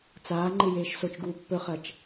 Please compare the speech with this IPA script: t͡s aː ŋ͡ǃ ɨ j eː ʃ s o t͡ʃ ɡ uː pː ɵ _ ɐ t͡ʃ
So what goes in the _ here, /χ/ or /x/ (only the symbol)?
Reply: χ